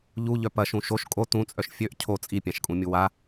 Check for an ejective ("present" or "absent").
present